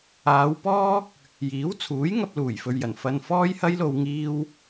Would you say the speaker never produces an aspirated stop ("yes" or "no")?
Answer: no